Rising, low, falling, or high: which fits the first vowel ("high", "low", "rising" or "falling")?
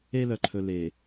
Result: high